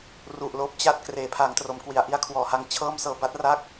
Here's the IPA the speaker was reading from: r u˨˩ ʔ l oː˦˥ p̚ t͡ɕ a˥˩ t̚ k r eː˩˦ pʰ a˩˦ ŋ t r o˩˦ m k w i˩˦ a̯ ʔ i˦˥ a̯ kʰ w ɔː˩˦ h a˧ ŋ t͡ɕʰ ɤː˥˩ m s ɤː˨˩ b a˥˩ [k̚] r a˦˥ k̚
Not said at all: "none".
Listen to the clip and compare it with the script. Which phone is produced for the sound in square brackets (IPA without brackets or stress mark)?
t̚